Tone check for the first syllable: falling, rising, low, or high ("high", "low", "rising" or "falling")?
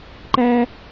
high